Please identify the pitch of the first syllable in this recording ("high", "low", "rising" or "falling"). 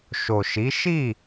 low